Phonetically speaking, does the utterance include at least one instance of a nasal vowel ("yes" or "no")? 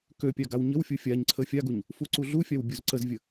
no